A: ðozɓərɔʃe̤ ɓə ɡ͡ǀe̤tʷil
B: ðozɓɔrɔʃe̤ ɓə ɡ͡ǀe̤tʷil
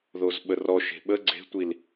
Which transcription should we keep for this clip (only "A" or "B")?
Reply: A